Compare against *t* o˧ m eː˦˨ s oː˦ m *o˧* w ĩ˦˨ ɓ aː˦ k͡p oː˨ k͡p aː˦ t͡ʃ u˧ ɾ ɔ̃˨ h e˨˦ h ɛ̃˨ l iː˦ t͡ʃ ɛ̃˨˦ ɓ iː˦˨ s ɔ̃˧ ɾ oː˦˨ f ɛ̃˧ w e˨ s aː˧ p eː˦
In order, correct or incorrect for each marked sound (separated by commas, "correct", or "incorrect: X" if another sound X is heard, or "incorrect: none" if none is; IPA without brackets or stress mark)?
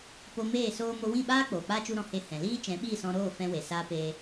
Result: incorrect: p, correct